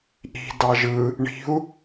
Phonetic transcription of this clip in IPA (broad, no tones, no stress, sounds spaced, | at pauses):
ʔ i̤ d ɑ ʒ ɯ | ɳ i̤ u̯